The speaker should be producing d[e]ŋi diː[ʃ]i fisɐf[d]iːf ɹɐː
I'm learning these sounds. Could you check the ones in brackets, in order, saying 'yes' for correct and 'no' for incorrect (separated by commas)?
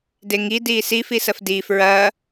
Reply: yes, no, yes